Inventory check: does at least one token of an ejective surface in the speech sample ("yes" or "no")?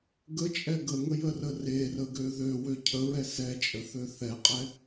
yes